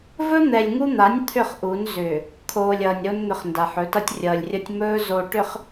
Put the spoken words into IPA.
vɵ˦n̪ɛ˨lʲŋu˦n̪a˨˦nʲ t̪ʰʏ˦˨χʔu˨˦n zʏː˨ | kʰoː˨lʲ ʌː˨nʲɾo˦n n̪ʏ˨χ nda˨ħɵ˨˦tʌ˦tʲ rʲʌː˨lʲrʲʌ˦tʲ mɵː˦ zo˨ ʈʏ˨χ

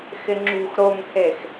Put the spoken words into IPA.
xɪŋ͡ǁṳx ɾoŋhex

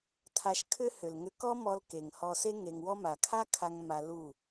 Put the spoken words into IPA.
tʰa˧ʃkʰʏ˦ hʏ˨lŋʏ˧kɔ˦mɔ˧l ke˨ŋ hɔ˧se˦ ŋe˧ŋwɔ˦ ma˨kʰa˦kʰa˧ŋ ma˧lu˦˨

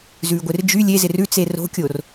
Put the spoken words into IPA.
zʉːɡʷɪrd͡ʒy lʲezɪr ʉt͡se ro̤kʲor

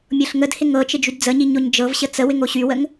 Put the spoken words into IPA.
mʲɤɬŋədhɪ ŋɤt͡ʃɪ d͡ʒydd͡zəɲi ɲoɲd͡ʒɤvɕə t͡səwɪŋ oɕywəŋ

